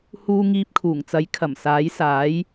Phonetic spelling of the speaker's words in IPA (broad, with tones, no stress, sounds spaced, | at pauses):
h uː˧ ŋ iː˧ p̚ kʰ uː˨˩ ŋ t͡s ɐ˨˥ j kʰ ɐ˨˩ m s aː˨˥ j s aː˨˥ j